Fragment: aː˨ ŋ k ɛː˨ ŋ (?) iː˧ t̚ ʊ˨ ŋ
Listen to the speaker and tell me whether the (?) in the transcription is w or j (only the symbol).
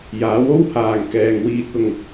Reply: w